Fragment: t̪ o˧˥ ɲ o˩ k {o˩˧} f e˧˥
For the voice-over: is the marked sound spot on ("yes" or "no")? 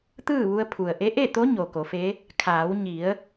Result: yes